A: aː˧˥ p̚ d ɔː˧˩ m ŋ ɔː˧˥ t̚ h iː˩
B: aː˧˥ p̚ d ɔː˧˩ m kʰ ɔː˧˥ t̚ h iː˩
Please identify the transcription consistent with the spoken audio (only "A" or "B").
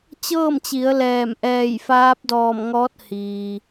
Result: A